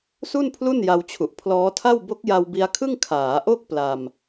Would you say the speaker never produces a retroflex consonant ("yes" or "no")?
yes